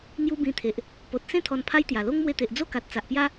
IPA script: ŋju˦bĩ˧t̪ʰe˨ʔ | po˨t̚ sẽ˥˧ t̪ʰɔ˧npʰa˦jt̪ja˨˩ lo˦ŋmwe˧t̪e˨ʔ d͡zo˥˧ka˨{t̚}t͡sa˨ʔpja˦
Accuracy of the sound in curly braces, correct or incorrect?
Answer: correct